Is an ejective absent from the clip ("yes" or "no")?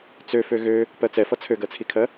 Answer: yes